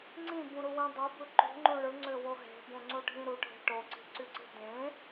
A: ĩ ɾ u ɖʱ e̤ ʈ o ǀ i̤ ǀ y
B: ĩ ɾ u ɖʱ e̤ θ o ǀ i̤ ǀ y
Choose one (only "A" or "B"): A